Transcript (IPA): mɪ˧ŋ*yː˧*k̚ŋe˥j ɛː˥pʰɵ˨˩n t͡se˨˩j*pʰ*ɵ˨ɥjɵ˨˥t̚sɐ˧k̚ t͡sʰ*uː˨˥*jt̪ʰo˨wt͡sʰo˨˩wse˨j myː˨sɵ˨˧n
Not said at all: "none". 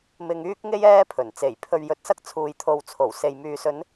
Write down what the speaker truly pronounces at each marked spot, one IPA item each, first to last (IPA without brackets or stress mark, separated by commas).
yː˥, pʰ, uː˨